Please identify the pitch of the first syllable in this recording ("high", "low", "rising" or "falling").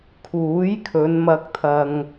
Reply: rising